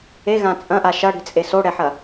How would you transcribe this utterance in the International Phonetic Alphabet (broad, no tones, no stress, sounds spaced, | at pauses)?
e ɣ ã t͡sʼ ɐ̃ ʔ a ʃ ɐ ɽ i̤ t͡sʼ e s o ɽ ɛ ħ ɐ